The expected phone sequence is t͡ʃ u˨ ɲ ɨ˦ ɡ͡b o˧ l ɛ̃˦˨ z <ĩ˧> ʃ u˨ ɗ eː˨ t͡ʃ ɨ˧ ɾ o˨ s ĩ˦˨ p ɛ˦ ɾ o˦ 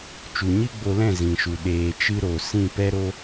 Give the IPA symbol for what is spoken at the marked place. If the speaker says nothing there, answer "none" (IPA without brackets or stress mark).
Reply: ĩ˨